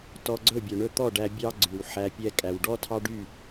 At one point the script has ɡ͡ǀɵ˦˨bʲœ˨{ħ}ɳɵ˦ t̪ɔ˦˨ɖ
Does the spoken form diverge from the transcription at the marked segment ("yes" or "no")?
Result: yes